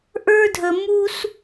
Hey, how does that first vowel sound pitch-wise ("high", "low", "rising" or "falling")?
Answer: high